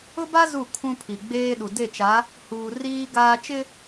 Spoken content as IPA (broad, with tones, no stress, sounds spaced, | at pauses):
ʊ˦ b a˦ z u˦˨ kʰ ũ˦ pʰ i˨ ɡ͡b eː˦ ɗ u˨ d e˦˨ t͡ʃ a˨˦ | h uː˨ r iː˦ ɡ aː˦ t͡ʃ ɪ˦